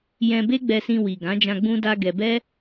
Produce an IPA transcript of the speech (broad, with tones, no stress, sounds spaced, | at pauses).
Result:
j ɛ̃˧ b e˦ ɡ͡b ɛ˧ s ĩ˧ w i˨ ɡ ã˨˦ d͡ʒ ã˧ ɡ͡b ũ˦ d a˦ ɡ ɛ˧ b ɛ˦